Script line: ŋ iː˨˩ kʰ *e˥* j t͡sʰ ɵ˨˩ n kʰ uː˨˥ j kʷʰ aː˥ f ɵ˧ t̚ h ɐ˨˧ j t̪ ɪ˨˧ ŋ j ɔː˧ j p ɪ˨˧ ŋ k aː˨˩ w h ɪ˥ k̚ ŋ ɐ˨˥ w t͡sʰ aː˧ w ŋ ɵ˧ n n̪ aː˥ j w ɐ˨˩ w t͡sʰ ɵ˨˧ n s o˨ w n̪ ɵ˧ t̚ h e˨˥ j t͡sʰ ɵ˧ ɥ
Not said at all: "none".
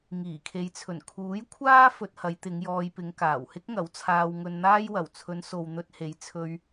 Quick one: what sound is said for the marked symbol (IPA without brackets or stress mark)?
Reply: e˨˧